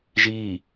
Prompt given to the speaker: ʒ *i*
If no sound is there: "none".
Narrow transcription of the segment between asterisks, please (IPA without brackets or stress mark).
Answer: i